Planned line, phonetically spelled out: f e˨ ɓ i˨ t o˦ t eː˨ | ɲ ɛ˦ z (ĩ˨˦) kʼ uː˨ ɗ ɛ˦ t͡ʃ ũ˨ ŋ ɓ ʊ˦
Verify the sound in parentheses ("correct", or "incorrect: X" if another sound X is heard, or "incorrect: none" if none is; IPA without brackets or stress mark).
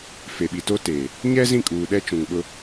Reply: incorrect: ĩ˦˨